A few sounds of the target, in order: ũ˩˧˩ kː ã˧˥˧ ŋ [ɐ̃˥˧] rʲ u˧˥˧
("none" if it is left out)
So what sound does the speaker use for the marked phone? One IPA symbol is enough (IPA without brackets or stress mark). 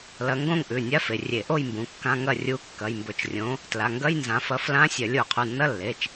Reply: ɐ˥˧